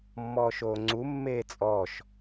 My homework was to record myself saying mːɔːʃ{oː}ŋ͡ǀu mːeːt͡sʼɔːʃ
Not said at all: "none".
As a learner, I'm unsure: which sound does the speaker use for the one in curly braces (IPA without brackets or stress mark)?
oː